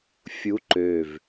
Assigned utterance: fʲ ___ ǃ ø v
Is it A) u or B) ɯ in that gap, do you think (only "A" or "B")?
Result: A